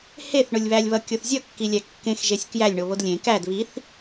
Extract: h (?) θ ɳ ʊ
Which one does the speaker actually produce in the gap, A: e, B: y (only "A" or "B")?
A